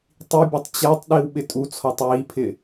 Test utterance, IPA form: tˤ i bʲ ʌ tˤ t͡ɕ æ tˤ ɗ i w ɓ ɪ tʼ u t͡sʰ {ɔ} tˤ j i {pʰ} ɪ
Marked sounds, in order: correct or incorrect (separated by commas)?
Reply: correct, correct